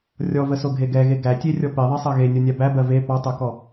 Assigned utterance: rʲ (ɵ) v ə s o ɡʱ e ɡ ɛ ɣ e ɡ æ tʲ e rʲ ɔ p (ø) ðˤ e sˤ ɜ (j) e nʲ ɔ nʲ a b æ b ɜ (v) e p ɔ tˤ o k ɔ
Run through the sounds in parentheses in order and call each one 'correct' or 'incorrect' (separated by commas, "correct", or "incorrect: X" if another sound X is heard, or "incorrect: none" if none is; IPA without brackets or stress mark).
incorrect: ɔ, incorrect: e, incorrect: ɣ, correct